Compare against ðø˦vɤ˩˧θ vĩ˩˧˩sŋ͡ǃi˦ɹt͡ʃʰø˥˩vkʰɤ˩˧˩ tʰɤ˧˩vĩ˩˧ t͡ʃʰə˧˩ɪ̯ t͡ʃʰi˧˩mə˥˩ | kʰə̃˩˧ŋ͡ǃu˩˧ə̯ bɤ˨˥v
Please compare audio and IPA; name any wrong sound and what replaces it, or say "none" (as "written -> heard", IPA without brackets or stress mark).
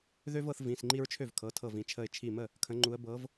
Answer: none